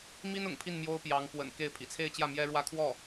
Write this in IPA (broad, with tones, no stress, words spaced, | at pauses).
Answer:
mi˥n ʊ̰˨˩ŋpʰi˥˩n mjo˥ʊ̯pjɑ˧˥ŋ pwə̰˨˩n ke˥˩ɪ̯ pʰḭ˨˩t͡sʰe˥˧ɪ̯t͡ɕjä˥˩ mjɛ˥ɻwä˥˧kʰwɔ˥˩